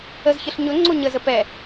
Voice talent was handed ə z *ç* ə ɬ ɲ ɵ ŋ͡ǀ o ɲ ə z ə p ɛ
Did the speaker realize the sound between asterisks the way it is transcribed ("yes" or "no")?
yes